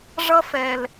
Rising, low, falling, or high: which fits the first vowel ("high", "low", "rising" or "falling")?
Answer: high